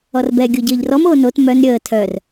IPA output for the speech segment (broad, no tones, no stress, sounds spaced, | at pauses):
ɔ r b ɛ ɡʲ o ɟ əː ʎ r ɔ m oː n o t m œ n ɾʲ əː tʰ œ r